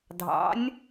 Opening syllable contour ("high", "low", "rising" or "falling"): rising